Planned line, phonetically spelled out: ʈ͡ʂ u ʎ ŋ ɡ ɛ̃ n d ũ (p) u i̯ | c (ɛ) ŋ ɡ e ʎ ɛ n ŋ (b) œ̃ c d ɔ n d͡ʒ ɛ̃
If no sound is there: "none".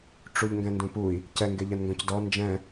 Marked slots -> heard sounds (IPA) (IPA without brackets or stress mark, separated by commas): p, ɛ, ɡ